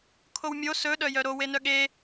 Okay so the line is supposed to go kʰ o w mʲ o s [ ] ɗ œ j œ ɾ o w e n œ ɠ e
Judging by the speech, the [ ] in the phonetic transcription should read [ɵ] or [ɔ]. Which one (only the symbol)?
ɵ